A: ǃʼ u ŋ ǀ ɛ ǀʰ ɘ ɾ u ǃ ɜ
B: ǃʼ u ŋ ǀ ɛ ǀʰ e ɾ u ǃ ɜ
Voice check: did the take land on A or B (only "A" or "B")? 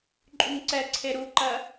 B